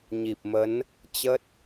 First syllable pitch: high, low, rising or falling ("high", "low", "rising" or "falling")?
low